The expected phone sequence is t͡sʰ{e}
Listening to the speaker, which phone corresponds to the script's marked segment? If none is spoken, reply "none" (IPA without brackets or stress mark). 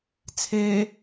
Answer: e